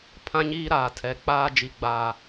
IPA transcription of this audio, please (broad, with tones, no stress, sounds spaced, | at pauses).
pʰ ã˦ ɲ iː˦ ɾ aː˨ tʰ ɛ˨ k͡p aː˦ d͡ʒ i˨ ɡ͡b aː˨